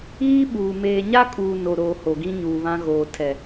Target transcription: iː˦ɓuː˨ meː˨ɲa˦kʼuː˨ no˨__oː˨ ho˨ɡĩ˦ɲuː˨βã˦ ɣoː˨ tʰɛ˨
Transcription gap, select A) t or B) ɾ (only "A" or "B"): B